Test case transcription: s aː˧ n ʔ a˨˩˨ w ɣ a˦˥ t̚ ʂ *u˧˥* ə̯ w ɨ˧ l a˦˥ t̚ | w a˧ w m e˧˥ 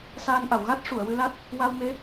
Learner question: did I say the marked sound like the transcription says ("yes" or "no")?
no